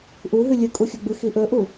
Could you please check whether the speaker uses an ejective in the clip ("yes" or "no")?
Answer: yes